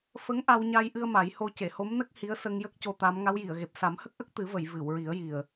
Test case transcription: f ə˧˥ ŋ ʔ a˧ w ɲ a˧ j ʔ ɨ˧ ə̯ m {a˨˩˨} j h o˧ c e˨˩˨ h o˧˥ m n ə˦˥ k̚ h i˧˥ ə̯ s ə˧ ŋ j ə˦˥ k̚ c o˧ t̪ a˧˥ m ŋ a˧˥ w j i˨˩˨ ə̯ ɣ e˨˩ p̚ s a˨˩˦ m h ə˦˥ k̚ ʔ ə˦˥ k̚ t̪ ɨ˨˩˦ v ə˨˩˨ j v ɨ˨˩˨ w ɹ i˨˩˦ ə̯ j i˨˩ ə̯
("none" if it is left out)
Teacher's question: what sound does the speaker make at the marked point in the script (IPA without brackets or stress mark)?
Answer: a˨˩˦